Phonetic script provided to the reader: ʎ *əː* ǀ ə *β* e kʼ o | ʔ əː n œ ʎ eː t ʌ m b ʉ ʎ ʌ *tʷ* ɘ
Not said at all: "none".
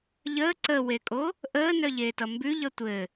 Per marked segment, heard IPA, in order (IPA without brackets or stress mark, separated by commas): əː, w, tʷ